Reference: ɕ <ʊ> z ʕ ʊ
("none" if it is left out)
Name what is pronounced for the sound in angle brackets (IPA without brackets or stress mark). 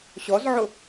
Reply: ɔ